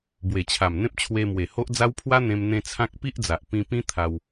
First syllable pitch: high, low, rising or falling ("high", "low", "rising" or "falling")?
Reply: low